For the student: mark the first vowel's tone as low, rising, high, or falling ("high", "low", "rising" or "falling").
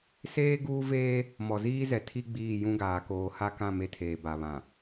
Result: high